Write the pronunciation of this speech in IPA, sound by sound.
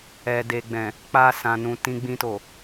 ɛ˨ d e˨ ɡ͡b ɛ̃˨ | k͡p a˧ s ã˨ n ũ˨ t ĩ˧ ɡ͡b ĩ˧ t o˨

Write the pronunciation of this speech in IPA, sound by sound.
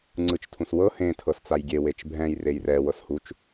ŋ͡ǀ ɯ t͡ʃ tʰ ũ s w ɤ h ẽ tʰ ɤ s t͡s a j ɡʲ e w e t͡ʃ bʱ ɛ̃ j r e j r ɛ w ɤ s h u t͡ʃ

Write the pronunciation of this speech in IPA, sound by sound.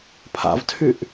pʰ a̰ v tʰ y ʔ

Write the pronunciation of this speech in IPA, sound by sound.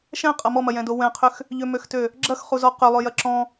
ʃ ɛ̃ qʼ ɐ m ɔ m ɐ j ɛ̃ d o w ɛ̃ qʰ ʏ x | ʎ ʏ m ø x t ø | ɡ͡ǁ ɐ x χ u z ɔ q ʏ lˠ ø j ɐ ǁ ɔ̃

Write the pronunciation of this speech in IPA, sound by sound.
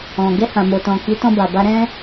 ɔ̃˨ ɡ ɛ˧ h ã˨ m o˨ t ɔ̃˨ k i˨˦ t ɔ̃˧ b a˨ b a˧ ɾ ɛ̃˦

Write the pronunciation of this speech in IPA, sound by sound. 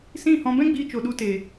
s ĩ˦˨ h ɔ̃˧ b ɛ̃˦ ɡ͡b iː˧ t͡ʃ o˨ ɗ u˧ t e˨

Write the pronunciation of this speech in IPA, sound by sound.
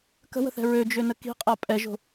k ə̤ w ə̤ θ ɛ̤ ɹ ø d͡ʒ ø n ə k i̤ qʼ a pʼ ɛ ʒ o̤

